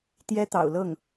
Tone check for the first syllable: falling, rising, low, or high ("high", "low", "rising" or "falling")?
high